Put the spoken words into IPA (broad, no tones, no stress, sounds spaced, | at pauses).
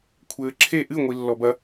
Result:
kʷʰ ɘː ǁʰ e ʔ ɨ ŋʷ i lː ɔ b ɐ